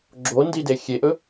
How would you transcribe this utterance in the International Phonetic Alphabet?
ɡ͡ǁ o n d i d e xʲ e ʔ ɵ

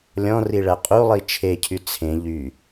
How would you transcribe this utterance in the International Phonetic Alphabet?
lʲ ɔ̃ r i ɭ æ qʼ u lˠ i t͡ʃʰ e cʰ y t͡sʰ ẽ ʎ y

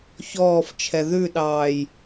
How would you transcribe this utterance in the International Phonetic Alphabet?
ç ɔː f t͡ʃʰ ɛ ð ʉ ɗ ɑː j

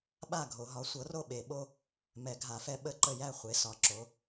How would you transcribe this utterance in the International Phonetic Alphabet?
ɓ a˥˨ ɡʱ o˨˩˦ ɦ ɒ˩˥ sʷ ɤ˩˥ r o˥˨ ɓ e˨˩˦ ɓ o˦ | m ɛ˨˩˦ ɡʱ a˨˩˦ f ɛ˦ ɓ ə˥˨ ǃ ə˥˨ j æ˥˨ χʷ e˩˥ s ɒ˩˥ ǁ o˩˥

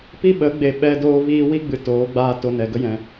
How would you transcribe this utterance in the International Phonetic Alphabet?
p i˦ ɓ ə˨˦ ɡ͡b e˨ ɓ ɛ˧ d oː˧ v iː˧ w i˦ ɡ͡b ɨ˨ t oː˨˦ ɡ͡b aː˦ t o˧ n ɛ˨ ɡ ə˦ j ɛ̃˨

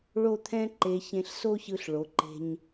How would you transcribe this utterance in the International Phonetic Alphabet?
ɭ o˥˧ t̪ʰ ɛ̃˥ ǃ e˧ ç ẽ˧ ɬ s o˥ ç ɯ˧ ɬ ɭ o˩˧ ǃ e̤˧ ɲ

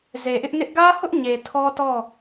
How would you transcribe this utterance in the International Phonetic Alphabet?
z e˨ ʔ ɪ˦ ʔ n ɪ˦ ʔ ɡ ä˦ h ʊ˦ ʔ ɲ e˨ tʰ ɔ˦ t ɔ˦˨

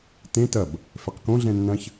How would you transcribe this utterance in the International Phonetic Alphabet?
t ẽ t ɐ b | f ɛ q k õ ɮ ɛ̃ nː ɐ̃ ç

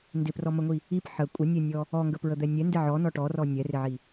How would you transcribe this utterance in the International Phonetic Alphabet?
n d ɪ p r ɔ m ə ŋʷ i | i p ħ ə kʷʼ ə nʲ ɛ nʲ ɔ | ɔ ŋ ɡ ə p ɹ ə d̪ ɛ nʲ ɛ n d ɪ ʕ ɔ n ɔ ʈ ɔ r ɔ nʲ ɛ r ɪ ʕ i

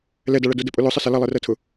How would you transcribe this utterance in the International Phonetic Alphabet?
l ɛ d a ɭ ɐ d ʊ d ə pʼ ʊ l ʊ sˤ ə s ɐ l ɐ lˠ ɛ r ɜ tʰ ʊ

